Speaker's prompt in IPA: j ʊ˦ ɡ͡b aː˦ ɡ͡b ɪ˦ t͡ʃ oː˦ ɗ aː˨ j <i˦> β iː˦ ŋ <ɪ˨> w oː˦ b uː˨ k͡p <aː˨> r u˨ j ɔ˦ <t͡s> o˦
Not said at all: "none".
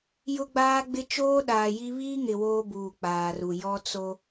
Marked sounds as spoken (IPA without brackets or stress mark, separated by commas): i˦, ɪ˨, aː˨, t͡s